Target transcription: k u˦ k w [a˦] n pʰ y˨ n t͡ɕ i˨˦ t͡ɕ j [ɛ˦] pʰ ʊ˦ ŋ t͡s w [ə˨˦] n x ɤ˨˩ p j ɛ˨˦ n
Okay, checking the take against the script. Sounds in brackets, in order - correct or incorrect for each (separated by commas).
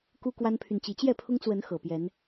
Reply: correct, incorrect, correct